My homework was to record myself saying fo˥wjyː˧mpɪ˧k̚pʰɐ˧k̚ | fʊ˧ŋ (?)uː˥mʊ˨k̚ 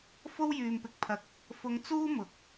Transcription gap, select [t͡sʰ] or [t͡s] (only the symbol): t͡s